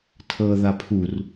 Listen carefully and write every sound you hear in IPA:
tʰ ɤ ð a pʰ u r

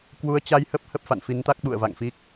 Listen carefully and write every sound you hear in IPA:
k w u˨˦ ə̯ t͡ɕ a˧ j h ə˦˥ p̚ h ə˦˥ p̚ f a̰˧˨ n f i˨˦ n t̪ a˦˥ k̚ ɓ ṵ˧˨ ə̯ v a̰˧˨ ŋ f i˦˥ k̚

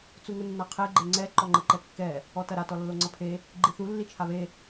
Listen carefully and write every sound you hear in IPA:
t͡s u ŋ ɘ nː a qʰ e ɡ͡ǃ e ŋ͡ǀ ɛ ǃ ɔ ŋ͡ǃ ɘ ǃ ɛ kː ɛ | ɔ t ɐ ɾ a t ɔ lː o ŋ͡ǀ ɐ pʰ e | ɡ͡ǃ i θ u lː i t͡ʃʰ a β e

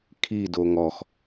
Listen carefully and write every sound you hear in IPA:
kʰ i d o ŋ ɔ x

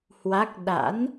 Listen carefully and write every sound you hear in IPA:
h w a˦˥ k̚ ɗ a̰˧˥ n

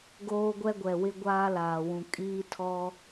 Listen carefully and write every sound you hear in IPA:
ɡ oː˦ ɡʷ ɛ˦ ɡʷ ɛ˨ w ɪ˦ ɡʷ aː˦ l aː˨ w ũ˨ kʼ iː˦ tʰ ɔ˦

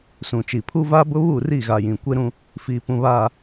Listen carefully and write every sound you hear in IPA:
s ũ˨ t͡ʃ i˨ pʰ u˦ v a˦ b ʊ˦ β u˦˨ r i˦˨ ɣ a˨ j ĩ˨ kʷ e˦ ɾ ũ˦ | f iː˨ p ũ˨ β aː˨

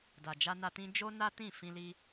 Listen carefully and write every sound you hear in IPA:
d a˨ d͡ʒ a˧ n a˧ t ĩ˦ d͡ʒ o˦ n a˦ t ĩ˦˨ f ĩ˧ l i˧

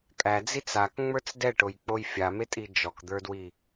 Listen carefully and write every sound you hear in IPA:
kʼ æ d͡z i t͡s a k ŋ͡m ə˞ t͡s d ɛ ʈ o j k͡p o j fʲ a m e tʼ i d͡ʒ ɔ k d̪ ə˞ d w i

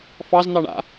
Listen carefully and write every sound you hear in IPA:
f ɑ z n̪ ɑ ɳ a̰

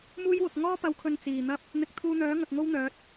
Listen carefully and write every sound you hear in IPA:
m uː˥ j w ʊ˨ k̚ ŋ ɔː˥ p ɐ˨˥ w kʰ ɵ˨ n t͡s iː˨˩ n̪ ɐ˥ p̚ | n̪ ɪ˨˥ k̚ t̪ʰ uː˧ n̪ œː˨˥ ŋ ɐ˨ k̚ ŋ o˥ w n̪ œː˨˥ t̚

